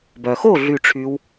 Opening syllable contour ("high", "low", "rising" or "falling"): low